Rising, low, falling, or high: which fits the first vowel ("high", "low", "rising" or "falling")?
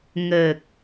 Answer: low